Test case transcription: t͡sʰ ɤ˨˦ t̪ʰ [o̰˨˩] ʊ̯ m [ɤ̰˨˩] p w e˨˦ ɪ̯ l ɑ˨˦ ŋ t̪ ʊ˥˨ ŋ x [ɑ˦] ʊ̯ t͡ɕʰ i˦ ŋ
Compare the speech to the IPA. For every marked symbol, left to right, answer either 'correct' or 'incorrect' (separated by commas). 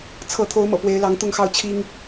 incorrect, correct, incorrect